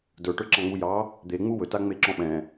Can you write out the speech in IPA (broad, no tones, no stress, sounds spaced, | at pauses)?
d ə˞ ʈ ə˞ ǁ ɑ̃ ŋ͡m u j ɑ | d̪ e ŋ͡m u w ɵ t a ŋ͡m e ǁ ɔ̃ ɓ ɛ̃